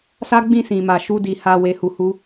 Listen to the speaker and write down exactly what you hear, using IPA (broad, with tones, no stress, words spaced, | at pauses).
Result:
sa˦ɡ͡bĩ˦˨ sĩ˨ma˨ ʃu˧di˨ ha˧ we˨hu˨ hu˧